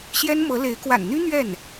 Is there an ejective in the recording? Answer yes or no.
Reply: no